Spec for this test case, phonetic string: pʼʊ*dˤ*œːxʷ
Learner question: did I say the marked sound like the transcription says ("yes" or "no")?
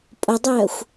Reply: yes